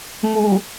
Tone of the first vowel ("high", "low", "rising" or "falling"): low